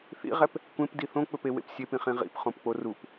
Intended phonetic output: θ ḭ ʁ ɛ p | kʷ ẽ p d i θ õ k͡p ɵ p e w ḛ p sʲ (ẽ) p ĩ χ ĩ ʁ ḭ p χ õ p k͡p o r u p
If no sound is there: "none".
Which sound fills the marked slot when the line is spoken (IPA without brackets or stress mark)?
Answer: e